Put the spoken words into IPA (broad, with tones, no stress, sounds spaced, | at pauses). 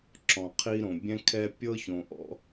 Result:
ǁ ɔ̃˨ qʰ i˦ ɾ õ˨ bʲ ɛ̃˦ kʰ ɛ˦ pʲ ɤ˦ ç õ˨ ʔ ɔ̰˦